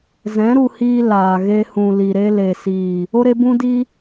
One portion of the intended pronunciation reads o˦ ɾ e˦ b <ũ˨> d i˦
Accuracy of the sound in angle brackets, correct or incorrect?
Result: incorrect